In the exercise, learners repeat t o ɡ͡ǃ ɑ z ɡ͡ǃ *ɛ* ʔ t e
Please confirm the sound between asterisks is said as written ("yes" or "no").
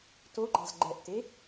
yes